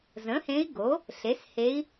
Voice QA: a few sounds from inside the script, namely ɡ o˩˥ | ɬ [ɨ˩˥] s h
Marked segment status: incorrect: e˩˥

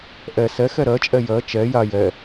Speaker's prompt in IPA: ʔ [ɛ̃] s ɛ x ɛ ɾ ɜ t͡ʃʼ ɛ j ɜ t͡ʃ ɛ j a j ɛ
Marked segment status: incorrect: ɛ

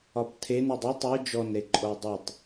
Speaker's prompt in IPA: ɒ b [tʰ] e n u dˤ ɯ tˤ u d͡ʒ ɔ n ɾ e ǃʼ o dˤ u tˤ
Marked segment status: correct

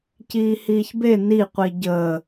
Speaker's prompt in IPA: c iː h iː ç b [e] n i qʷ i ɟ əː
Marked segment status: correct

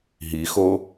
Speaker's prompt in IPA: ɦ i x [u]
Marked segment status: incorrect: o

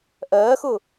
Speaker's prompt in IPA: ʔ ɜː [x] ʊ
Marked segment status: correct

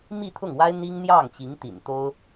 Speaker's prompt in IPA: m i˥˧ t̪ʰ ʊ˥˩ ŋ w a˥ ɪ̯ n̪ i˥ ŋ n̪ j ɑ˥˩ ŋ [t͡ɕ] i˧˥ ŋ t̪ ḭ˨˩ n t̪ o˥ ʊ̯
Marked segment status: correct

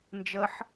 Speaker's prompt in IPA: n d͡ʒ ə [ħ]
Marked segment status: correct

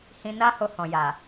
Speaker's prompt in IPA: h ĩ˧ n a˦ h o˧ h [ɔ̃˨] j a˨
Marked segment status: correct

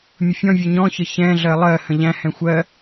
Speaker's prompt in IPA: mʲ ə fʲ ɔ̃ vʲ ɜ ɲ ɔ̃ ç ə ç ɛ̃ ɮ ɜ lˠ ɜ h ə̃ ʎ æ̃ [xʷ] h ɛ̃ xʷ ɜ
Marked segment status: incorrect: none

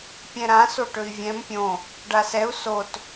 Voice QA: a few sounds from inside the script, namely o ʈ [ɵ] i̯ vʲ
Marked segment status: correct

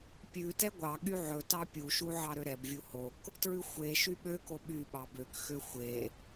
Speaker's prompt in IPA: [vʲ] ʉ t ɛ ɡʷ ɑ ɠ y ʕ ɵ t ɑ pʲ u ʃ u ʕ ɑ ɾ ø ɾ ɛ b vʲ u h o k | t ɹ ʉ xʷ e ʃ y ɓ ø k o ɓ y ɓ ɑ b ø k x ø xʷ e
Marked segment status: incorrect: pʲ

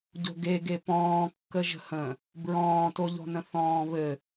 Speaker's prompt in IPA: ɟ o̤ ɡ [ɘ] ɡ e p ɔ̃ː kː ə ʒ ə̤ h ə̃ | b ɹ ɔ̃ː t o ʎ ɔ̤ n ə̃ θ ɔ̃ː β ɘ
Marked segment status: incorrect: e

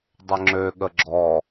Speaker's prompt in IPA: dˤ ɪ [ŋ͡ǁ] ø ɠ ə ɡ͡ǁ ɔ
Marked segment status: correct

